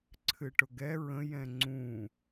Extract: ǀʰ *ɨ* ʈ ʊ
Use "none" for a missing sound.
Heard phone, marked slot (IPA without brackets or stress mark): ɨ